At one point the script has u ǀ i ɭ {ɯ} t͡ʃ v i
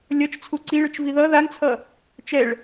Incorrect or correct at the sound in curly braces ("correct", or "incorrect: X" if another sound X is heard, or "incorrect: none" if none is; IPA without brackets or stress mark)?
correct